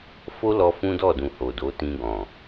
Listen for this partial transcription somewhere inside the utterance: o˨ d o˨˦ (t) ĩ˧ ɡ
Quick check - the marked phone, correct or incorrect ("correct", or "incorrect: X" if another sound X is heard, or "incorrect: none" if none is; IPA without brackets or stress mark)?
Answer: correct